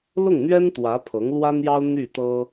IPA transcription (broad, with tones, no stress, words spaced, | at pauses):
lʊ˥˩ŋn̪ɥɛ˥n t̪wä˧˥pʰɤ˧˥ŋlwa˥njɑ˥ʊ̯ n̪y˥˩t̪ɤ˥